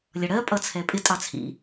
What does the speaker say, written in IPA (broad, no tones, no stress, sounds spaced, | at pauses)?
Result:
lʲ ʌ ɽ ɜ pʼ ʌ t͡sʰ ɛ pʼ ɪ tʼ ɑ t͡sʰ ḭ